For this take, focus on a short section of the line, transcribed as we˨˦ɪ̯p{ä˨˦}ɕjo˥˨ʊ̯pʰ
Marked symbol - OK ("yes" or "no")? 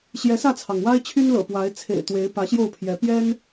yes